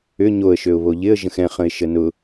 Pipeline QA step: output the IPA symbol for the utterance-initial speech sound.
ʏ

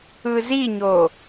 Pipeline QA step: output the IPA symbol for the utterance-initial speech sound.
ɯ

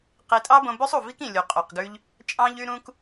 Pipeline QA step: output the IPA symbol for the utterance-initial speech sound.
q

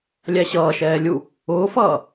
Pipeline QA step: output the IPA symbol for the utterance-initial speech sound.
lʲ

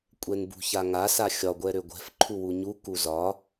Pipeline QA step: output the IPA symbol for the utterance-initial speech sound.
kʷʼ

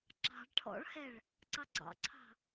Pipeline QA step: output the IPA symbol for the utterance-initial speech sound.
ǁ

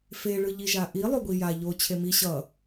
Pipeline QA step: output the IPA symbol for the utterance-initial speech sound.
f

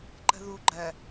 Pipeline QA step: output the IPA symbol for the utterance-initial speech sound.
ǃ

